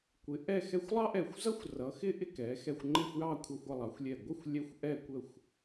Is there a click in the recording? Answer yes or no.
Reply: yes